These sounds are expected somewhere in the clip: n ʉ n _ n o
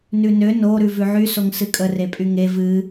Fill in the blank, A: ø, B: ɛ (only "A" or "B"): A